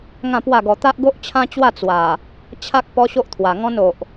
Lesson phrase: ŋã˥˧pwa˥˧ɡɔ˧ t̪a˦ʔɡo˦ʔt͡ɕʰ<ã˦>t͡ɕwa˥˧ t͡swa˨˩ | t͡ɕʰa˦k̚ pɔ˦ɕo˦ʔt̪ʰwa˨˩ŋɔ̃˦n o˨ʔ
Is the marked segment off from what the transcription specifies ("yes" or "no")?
no